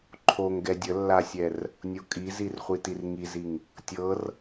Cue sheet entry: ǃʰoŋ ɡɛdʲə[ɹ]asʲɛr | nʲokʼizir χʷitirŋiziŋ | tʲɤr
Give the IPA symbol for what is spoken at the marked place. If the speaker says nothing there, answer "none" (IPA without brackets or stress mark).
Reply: lː